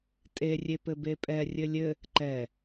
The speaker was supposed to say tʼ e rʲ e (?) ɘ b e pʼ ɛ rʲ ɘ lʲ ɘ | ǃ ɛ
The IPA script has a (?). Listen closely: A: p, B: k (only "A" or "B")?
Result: A